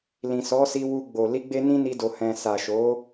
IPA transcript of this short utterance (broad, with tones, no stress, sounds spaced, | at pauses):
l ĩ˨ s ɔ˨˦ s i˧ w u˧ ɡ͡b o˨ l i˧ ɡ͡b e˧ n ĩ˦ n i˧ d o˨ h ɛ̃˨ s a˨ ʃ o˨˦